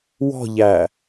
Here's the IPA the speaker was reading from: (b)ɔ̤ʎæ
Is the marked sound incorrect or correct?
incorrect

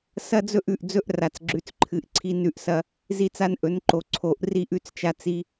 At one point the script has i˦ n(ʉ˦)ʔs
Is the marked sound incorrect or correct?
correct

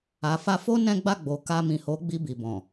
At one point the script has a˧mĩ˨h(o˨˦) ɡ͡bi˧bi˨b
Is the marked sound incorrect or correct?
correct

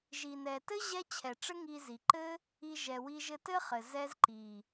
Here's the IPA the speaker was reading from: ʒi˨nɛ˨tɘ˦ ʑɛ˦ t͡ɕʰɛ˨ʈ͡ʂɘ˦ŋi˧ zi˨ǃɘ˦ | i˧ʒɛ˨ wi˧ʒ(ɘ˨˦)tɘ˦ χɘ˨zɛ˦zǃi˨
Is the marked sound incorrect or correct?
incorrect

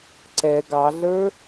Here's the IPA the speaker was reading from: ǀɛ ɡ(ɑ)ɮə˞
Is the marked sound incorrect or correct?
correct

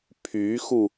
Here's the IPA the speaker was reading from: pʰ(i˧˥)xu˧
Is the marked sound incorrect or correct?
incorrect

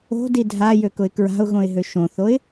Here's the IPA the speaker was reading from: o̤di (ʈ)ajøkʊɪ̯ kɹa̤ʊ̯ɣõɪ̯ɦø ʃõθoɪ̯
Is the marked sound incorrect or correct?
incorrect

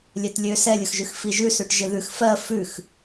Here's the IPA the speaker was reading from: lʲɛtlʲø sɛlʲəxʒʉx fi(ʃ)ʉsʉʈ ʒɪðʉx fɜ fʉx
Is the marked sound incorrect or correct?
incorrect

